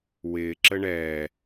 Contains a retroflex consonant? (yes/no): yes